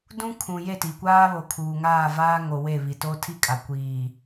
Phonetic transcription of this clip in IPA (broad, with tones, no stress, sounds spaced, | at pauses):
d ũ˦ kʰ ũ˨ j e˦˨ t i˨ kʷ aː˦ β o˨ kʰ uː˨ ŋ aː˦˨ v aː˦ ŋ o˨ w e˦˨ β i˨ t o˦ tʰ i˦ kʼ a˨ kʷ iː˨